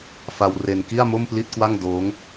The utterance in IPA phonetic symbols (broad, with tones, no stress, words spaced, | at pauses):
fa˧wre˧n ki˥˩a̯mo˥˩mpli˥˩t̚kwa˥˩ŋ doː˦˥ŋ